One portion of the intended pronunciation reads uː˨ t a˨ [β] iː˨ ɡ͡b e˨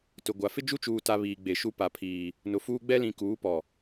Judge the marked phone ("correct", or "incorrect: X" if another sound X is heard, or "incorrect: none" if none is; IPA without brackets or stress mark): correct